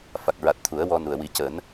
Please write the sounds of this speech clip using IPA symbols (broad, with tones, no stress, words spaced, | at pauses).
fa˨˩k̚ɹa˨˩t̚ t̪ʰu˨˩˦ə̯wɔ˧nu˨˩ə̯ wi˨˩˦cəː˨˩˦n